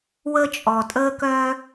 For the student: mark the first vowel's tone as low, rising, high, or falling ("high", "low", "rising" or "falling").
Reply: high